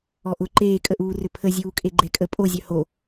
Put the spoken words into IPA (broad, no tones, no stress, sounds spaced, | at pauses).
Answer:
ɔ ʔ ʊ ǃ eː kʼ ə ʔ uː r ʏ pʰ ə zʲ uː kʼ e ɡ͡ǃ ɛ kʼ ə pʼ o zʲ œ h o